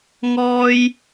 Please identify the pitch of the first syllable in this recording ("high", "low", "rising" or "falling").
high